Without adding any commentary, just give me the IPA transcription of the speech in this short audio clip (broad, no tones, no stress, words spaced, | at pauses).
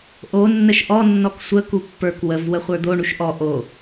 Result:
ʔo nːəʃʔɔ nːɔksʷə kupːə˞k wəv wəχʷə˞d̪o ɳuʃʔɔ ʔo